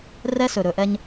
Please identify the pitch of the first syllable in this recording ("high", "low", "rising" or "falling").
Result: high